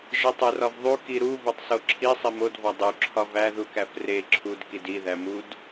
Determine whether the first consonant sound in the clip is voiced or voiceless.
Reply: voiced